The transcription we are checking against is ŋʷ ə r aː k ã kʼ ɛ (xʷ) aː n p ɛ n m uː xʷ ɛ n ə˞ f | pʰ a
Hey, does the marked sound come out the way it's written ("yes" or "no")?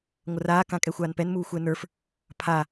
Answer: yes